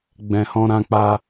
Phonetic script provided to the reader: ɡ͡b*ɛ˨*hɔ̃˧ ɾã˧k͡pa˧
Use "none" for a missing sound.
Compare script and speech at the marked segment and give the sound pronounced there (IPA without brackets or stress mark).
ɛ̃˨